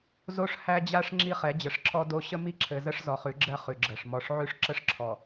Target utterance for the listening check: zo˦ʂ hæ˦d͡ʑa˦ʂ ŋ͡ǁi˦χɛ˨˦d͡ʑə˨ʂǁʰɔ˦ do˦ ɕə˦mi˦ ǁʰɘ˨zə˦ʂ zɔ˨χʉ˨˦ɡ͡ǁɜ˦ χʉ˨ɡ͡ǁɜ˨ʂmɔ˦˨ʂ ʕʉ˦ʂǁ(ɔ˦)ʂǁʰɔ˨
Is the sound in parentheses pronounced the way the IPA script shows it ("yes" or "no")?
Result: no